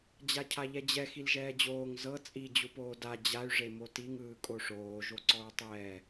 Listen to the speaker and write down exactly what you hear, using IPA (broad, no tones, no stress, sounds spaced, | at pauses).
d͡ʑ a cʰ a ʎ ɛ d͡ʑ ɛ x i l ʒ ɛː d͡ʑ oː ŋ z ɤ t͡sʼ i d͡ʑ u p oː d a d͡ʑ a y̯ ʐ e m o t i ŋ ɯː kʼ o ʂ oː ʒ o ǀ ɔ ɹ tˤ ɛː